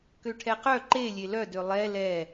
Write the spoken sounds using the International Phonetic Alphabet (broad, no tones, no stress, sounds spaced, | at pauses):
k ø ʈʰ ɛ q œ ǃ e lʲ e l œ d ø lˠ ɛ l ɛ